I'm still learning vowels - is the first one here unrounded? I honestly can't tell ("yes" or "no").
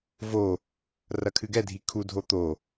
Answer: no